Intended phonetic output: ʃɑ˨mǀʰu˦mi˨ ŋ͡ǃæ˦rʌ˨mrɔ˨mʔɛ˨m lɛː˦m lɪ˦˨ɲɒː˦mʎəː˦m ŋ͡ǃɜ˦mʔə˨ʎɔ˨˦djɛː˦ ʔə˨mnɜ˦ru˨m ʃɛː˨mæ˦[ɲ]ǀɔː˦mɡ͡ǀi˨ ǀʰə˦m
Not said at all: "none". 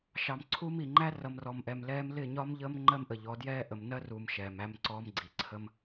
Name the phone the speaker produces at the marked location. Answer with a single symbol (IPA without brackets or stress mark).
m